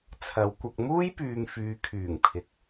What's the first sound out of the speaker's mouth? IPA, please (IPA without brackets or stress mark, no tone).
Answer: t͡sʰ